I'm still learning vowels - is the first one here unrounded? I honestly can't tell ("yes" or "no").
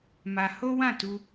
yes